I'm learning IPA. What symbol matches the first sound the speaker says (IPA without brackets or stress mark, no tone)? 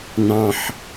n